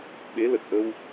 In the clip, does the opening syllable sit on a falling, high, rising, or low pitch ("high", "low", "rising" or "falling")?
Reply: rising